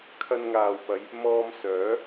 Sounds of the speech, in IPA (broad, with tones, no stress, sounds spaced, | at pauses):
kʰ ɐ˧ n ŋ aː˨ w p ɐ˨˧ j | m ɔː˧ m s œː˨˥